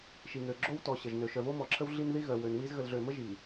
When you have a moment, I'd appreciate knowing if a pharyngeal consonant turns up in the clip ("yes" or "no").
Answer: no